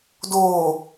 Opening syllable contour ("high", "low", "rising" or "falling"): low